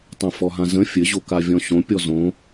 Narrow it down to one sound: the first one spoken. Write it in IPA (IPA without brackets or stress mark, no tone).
tˤ